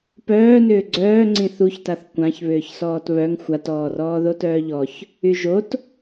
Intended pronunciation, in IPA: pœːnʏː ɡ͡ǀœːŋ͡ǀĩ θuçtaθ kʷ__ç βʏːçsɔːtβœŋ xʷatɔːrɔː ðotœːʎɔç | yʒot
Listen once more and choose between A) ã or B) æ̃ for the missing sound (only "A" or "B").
A